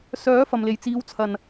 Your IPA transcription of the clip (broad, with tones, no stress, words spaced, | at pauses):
sœː˨˥ fɐ˨mle˨˩j t͡siː˨˥wt͡sʰɐ˨˩n